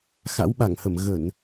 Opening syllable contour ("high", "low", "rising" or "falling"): rising